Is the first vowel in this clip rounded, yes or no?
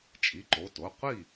no